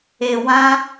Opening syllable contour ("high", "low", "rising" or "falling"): low